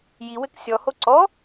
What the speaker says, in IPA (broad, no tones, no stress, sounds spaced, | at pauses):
j i w ɘ k sʲ ɔ h o ǀ ɔ